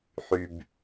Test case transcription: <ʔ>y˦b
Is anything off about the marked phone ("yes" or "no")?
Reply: yes